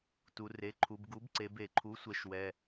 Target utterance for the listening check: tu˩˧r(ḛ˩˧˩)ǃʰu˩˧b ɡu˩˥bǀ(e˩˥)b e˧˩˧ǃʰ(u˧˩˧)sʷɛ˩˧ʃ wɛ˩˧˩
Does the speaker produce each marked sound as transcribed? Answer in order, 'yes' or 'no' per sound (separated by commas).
no, no, no